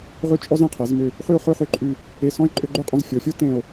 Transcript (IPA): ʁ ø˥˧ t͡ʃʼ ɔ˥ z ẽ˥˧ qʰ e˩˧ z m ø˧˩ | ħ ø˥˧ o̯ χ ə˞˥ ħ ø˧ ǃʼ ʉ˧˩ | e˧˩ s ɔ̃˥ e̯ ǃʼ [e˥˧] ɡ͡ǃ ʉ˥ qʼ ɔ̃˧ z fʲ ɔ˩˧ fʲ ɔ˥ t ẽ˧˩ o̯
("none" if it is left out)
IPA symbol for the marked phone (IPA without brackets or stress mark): ø˥˧